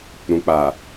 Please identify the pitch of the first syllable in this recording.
low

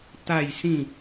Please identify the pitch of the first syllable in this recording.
falling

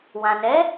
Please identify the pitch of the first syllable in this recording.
low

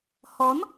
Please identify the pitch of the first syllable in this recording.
rising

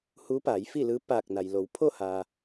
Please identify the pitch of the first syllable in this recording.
rising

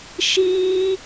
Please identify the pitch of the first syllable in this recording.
high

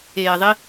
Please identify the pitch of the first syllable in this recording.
low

